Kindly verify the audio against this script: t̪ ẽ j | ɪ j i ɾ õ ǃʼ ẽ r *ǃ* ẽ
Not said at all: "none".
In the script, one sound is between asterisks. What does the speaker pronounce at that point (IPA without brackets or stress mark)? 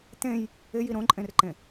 ǃ